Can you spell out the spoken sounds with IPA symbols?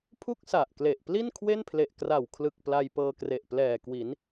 pʰ u˥˩ k̚ s a˨˩ ʔ k l e˨˩ ʔ p l i˥˩ n kʰ w e˥˩ n pʰ l e˨˩ ʔ k r a˨˩ w kʰ l ɯ˨˩ k̚ p l a˧ j p ɤː˧ k r e˨˩ ʔ p l ɛː˨˩ k w i˩˦ n

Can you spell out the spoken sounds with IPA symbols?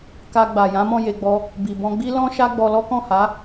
k a˧ ɡ͡b a˨ j ã˨˦ m ɔ̃˦˨ j e˧ ɡ͡b ɔ˧ | b i˨ b ɔ̃˧ ɡ͡b i˦ l ɔ̃˦ ʃ a˦ ɡ͡b ɔ˧ l ɔ˦ k ɔ̃˦˨ h a˨˦

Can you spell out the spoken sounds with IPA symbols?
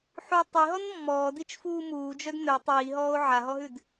ħ u tˤ i ɦ ɔ n mː ɔː d i t͡ʃ f uː m uː d͡ʒ œ d n œ tˤ iː ɦ ɔː o̯ ʕ a ɦ ɔ ɦ ʉ d

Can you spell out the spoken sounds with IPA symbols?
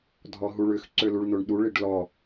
dʱ ɔ ɦ u ɭ ʏ x ǀ ø l u ɭ n o ɳ ɗ u ɭ i ɖ l ɔ

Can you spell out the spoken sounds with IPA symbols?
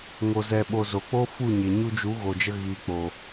ŋ o˧ z ɛ˧ ɓ o˧ z o˨ k͡p o˦ f u˦˨ ɲ e˨ ɲ u˧ d͡ʒ u˨˦ ɣ o˨ d͡ʒ ə˧ ɣ iː˨ k͡p o˨

